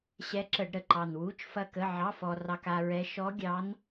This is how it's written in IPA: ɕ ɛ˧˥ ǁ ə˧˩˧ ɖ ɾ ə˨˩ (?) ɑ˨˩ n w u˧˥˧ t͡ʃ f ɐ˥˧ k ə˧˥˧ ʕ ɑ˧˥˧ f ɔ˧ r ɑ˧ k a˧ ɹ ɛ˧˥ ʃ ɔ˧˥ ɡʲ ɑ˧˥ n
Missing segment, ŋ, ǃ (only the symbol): ǃ